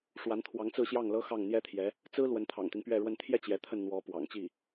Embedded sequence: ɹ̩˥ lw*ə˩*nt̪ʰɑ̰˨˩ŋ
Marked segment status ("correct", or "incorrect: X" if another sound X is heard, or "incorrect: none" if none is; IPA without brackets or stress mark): incorrect: ə˧˥